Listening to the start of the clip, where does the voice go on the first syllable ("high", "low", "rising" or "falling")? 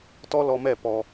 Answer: high